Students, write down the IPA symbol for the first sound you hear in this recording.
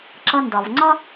ǁ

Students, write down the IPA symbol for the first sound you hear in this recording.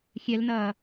xʲ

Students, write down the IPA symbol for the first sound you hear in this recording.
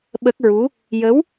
ɓ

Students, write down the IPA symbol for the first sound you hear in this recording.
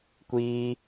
kʷ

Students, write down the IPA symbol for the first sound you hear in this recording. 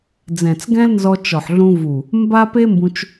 d͡z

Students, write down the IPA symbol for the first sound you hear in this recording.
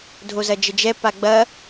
dʱ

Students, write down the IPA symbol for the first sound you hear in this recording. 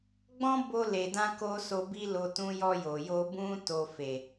ɡ͡b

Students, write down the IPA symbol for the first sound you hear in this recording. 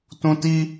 t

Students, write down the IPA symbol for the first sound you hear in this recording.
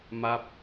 m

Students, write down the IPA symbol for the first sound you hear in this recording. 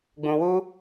ɡ͡b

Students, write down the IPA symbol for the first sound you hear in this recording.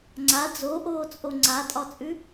ŋ͡ǀ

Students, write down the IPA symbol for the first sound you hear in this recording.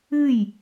ɨ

